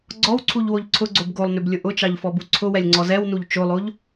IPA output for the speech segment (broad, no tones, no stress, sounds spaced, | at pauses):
ɡ͡ǀ ɔ w ǀʰ u ʎ w o ʎ ǀʰ ʊ ɡ͡ǀ o b ɡ o lˠ n ʏ b lʲ ʊ ʔ ʊ t͡ʃ ɑ ʎ f ɔ b u ǀʰ ʊ w ɛ lʲ ŋ͡ǀ ɔ z ɛ w n u ʎ t͡ʃ o lˠ o ʎ